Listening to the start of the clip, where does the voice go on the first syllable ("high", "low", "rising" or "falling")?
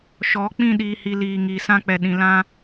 rising